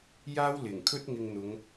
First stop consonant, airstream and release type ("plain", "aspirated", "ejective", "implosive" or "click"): aspirated